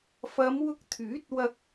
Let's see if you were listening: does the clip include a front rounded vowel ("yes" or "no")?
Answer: yes